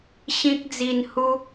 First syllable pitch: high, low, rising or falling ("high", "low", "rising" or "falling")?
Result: high